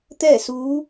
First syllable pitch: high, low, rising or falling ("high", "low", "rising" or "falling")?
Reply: falling